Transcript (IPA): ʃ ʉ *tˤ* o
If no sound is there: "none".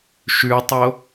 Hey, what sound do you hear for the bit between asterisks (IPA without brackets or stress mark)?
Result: tˤ